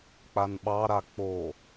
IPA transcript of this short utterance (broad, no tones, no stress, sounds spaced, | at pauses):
k͡p a n ɓ ɑ ɾ a k͡p o